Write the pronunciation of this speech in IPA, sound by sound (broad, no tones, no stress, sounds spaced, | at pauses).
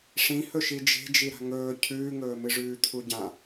ʂ ĩ h ɵ ʃ i d͡ʒ e̤ d͡ʒ i ɾ a̤ ŋ ɵː cʰ ʉː ŋ ɵː m ɨ ʐ ʉː t̪ʰ u ɟ ã